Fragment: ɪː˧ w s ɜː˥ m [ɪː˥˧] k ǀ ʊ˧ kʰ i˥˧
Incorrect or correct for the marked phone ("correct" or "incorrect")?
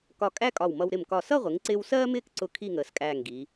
correct